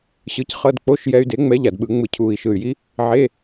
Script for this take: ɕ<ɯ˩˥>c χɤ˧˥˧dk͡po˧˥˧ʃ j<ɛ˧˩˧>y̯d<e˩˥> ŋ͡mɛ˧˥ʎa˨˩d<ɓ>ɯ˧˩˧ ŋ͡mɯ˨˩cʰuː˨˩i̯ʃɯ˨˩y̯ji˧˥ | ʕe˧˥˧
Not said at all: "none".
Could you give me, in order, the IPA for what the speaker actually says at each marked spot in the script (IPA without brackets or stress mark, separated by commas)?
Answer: ɯ˩˥, ɛ˧, e˩˥, ɓ